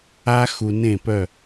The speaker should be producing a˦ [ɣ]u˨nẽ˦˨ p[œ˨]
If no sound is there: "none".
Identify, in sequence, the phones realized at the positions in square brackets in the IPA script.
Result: x, œ˦˨

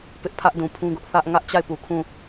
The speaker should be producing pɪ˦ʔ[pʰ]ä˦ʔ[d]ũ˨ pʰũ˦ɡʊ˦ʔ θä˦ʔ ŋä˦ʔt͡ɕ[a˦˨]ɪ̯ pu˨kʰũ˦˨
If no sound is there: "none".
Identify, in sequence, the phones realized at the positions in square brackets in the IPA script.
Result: pʰ, d, a˦˨

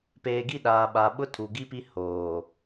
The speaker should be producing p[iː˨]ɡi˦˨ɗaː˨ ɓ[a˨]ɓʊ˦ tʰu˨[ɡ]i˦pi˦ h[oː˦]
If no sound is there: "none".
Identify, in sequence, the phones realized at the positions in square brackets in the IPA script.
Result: eː˨, a˨, ɡ, oː˨

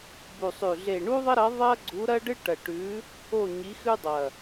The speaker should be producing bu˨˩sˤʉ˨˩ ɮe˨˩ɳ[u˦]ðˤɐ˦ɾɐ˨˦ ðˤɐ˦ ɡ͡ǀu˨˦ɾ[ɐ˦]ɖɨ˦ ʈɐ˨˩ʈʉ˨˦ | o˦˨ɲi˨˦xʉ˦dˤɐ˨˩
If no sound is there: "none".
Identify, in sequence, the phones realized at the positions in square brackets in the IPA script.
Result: u˦, ɐ˦

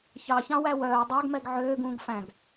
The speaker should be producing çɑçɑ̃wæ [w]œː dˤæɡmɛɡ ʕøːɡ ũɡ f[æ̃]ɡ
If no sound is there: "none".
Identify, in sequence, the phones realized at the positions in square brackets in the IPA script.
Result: w, æ̃

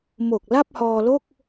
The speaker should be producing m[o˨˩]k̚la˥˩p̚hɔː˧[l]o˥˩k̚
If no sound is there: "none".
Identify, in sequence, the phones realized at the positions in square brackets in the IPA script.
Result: o˨˩, l

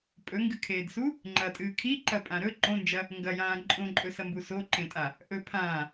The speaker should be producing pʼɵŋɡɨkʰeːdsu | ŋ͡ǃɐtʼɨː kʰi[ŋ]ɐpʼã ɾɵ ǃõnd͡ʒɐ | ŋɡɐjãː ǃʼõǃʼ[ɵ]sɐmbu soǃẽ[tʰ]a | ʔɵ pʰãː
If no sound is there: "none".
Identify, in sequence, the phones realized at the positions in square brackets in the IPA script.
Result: ǃ, ɵ, tʼ

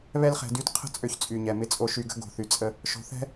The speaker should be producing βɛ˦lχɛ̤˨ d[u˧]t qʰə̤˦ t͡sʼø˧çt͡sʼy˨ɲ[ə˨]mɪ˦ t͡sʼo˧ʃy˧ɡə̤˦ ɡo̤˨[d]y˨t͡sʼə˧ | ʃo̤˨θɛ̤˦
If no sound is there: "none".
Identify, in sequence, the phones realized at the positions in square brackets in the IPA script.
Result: y˧, ɛ˨, θ

